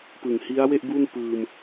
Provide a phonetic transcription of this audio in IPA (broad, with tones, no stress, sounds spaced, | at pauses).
p ɯ˨˩ ŋ h i˦˥ a̯ w e˥˩ ʔ b u˥˩ n p ɯː˧ m